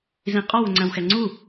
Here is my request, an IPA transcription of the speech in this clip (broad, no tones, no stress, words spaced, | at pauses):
zĩqʼɒ wʊŋ͡ǀæ̃wxɛŋ͡ǀu